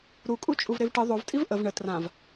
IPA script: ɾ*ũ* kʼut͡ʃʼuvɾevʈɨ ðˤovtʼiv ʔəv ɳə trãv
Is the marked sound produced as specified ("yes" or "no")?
no